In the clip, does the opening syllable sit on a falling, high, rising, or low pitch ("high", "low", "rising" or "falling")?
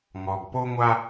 low